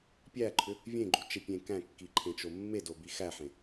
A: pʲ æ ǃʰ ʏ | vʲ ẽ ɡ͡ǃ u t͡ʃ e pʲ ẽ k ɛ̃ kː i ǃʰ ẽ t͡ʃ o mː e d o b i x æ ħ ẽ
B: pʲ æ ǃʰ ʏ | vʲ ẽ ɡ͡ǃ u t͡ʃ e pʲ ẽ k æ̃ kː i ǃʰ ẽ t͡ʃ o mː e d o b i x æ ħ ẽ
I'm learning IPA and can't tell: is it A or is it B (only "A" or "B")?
B